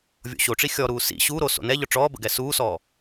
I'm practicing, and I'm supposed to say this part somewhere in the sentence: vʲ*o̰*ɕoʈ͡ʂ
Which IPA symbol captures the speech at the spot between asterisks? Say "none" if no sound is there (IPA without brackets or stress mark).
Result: o̰